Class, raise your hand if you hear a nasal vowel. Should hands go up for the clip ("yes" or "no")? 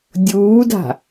no